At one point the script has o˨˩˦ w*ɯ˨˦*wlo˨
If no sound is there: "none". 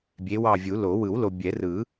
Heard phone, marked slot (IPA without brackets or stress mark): ɯ˨˩˦